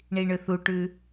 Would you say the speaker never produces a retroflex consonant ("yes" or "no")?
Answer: no